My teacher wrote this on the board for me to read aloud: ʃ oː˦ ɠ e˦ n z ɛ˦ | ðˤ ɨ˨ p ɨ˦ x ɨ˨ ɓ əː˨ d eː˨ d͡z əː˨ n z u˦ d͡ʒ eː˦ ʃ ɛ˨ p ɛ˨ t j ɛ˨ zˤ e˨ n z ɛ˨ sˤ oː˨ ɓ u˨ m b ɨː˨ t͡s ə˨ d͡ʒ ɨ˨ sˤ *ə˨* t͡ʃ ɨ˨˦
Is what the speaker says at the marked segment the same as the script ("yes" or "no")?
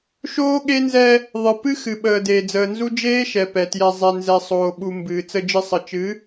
yes